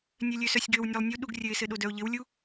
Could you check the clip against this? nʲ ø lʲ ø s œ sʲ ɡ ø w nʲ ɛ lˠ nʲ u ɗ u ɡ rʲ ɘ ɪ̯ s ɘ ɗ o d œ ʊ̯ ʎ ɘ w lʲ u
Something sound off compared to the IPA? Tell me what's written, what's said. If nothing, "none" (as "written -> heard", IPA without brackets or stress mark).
none